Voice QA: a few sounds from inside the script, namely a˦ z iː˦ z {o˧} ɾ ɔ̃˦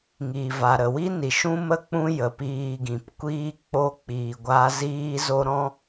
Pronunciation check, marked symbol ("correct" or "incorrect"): incorrect